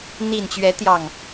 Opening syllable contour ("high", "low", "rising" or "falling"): low